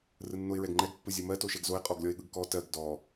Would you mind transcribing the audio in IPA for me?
rɯnːoɪ̯ɹɛɡŋ͡ǃɛɡ pːɯzʲomɜ toʃɛɡzoɪ̯ qʼɔɡlʲɔɪ̯ɠɯɡkɔ tɜɡ dɔ

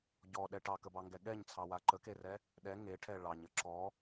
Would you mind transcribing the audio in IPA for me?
ɟɔɗɛ ʈɑkəbɑŋɡɛ ɠɛɲt͡sʰɑwa ǃəkerɛ | ɗɛ ŋeʈʰɛ ɭɑɲə ǁɔ

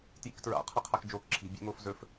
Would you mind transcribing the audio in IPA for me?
tjḭktɹa̰ qʰɐqʰakd͡ʒoːkǁʰi̤ bʲḛŋoːfzɵf

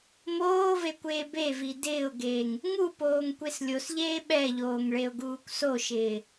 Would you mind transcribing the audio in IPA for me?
moːve kʷeːbevi dɪːʊ̯ɡeːŋ | ŋupoːŋ kʷeslʲosʎeː ɓɛʎoːŋ ɭeʊ̯ɡuːkʷsoʃɪː

